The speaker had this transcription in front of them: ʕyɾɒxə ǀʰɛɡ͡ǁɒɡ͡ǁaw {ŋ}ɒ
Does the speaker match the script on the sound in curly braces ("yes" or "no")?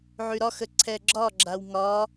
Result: yes